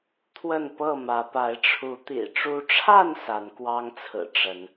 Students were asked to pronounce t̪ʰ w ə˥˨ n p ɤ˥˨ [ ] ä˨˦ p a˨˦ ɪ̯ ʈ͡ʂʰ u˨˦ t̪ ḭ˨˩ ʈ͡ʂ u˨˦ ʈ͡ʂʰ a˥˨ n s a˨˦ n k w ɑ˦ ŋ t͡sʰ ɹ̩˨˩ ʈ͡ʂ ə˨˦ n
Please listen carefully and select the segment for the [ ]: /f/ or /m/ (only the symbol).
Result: m